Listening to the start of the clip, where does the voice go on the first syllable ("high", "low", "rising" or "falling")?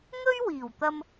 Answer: high